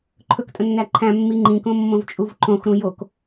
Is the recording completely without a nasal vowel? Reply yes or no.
no